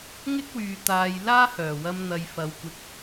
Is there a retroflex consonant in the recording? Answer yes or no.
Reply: no